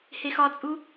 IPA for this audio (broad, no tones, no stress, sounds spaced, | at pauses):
h e x ɒ t͡sʼ u